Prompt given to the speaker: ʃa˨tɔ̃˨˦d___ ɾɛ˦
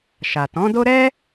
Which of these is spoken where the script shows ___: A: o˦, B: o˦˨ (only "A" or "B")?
A